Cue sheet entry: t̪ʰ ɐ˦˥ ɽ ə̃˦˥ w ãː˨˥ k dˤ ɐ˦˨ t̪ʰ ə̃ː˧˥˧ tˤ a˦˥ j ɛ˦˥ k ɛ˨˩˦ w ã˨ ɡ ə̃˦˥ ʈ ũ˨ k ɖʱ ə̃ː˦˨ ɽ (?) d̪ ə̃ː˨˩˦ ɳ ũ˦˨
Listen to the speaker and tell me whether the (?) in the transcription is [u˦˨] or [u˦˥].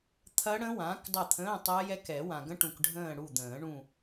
u˦˨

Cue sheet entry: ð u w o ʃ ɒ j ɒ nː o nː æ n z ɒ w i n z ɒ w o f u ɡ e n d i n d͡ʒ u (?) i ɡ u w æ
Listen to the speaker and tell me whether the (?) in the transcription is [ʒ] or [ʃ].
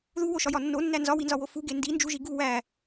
ʒ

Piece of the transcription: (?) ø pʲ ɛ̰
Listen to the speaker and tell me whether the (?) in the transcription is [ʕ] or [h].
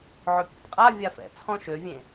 ʕ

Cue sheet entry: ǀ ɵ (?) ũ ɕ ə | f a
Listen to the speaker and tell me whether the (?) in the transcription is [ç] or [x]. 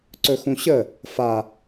x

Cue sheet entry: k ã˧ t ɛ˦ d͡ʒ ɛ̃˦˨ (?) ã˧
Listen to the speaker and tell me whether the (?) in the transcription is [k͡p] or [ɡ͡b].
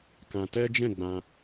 ɡ͡b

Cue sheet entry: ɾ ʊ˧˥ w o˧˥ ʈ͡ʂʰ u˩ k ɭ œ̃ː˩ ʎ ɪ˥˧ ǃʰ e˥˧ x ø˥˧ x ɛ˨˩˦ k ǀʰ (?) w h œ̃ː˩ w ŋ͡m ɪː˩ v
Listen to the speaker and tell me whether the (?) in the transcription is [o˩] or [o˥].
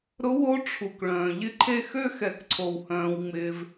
o˩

